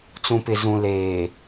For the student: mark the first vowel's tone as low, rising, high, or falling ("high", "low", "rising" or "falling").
low